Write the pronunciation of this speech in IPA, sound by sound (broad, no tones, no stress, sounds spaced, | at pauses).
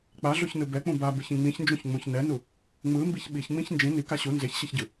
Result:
k͡p a ɮ o ç n ɯ b ɛ k͡p ũ b a b ɯ ç ĩ ŋ͡m ĩ ç n d͡ʒ ũ ç ŋ͡m ũ ç n ɛ n u | ŋ͡m ɯ m b i ç ɓ i ç ŋ͡m ĩ ç n d͡ʒ ĩ n i k a ɕ u n z e ç ɕ e ç ɟ ɯ